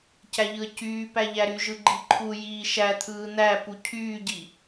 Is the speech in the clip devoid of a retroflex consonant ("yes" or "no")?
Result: yes